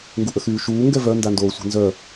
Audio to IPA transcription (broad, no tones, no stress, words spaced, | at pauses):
ŋɡuʔəxyːʃuː ŋɡɛvœ ndandoːsʷe̤nzœ